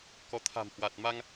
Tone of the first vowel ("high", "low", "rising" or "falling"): rising